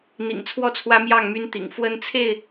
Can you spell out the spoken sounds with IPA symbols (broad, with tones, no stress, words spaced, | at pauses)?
n̪ḭ˨˩ŋt͡sʰwɔ˥˨t͡sʰwä˦ mjɑ˥˨ŋmy˦nt̪ḭ˨˩ŋ fwə˦nt͡sʰe˥˨ɪ̯